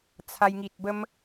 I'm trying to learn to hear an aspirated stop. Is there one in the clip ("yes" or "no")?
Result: yes